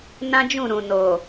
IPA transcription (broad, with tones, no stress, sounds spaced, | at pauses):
n ã˦ d͡ʒ ũ˦˨ ɾ ũ˨ n o˨